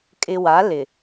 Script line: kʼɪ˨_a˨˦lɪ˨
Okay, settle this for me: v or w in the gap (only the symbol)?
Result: w